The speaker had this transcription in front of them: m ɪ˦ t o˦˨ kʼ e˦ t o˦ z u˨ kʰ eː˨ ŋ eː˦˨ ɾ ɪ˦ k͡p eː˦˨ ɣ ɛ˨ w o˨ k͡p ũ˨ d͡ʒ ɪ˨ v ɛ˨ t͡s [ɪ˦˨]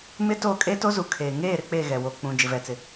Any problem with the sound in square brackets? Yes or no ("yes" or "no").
yes